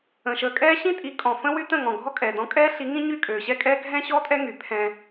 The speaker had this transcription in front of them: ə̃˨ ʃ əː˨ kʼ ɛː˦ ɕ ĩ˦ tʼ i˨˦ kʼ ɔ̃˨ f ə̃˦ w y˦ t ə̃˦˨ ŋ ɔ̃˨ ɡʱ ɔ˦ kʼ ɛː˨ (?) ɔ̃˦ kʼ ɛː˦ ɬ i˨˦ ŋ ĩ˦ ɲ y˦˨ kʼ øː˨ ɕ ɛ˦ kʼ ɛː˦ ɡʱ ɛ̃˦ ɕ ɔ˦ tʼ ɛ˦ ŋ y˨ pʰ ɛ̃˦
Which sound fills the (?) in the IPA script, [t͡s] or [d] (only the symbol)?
d